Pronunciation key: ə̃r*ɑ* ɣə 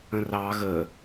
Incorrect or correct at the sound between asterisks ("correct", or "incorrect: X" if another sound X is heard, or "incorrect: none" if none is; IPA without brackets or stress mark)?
correct